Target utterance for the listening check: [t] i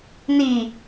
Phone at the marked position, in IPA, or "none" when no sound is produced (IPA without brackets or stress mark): n